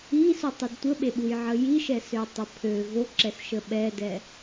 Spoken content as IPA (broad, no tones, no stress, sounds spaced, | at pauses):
i s u tˤ e d tʷ ə ɓ e ɓ u j ʕ ə j i ʃ ɛ s ø tˤ ə pʰ ø v o ǁ ɛ s ʃ ə ɓ ɛ d ɛ